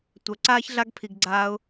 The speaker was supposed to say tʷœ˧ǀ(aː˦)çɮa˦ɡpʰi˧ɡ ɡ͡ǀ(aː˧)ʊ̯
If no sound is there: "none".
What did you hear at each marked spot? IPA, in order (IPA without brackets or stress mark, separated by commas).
aː˦, aː˧